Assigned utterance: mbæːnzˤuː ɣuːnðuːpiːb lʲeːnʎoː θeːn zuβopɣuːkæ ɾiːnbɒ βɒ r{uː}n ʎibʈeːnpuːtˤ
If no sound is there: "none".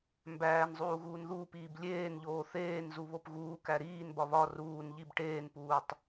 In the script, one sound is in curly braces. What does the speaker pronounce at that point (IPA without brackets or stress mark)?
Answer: uː